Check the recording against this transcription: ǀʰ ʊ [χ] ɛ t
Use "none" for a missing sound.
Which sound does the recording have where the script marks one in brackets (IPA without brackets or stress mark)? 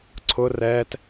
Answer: r